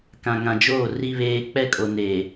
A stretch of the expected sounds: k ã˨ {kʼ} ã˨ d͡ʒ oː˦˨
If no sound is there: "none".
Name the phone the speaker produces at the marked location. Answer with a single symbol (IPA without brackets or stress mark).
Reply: ŋ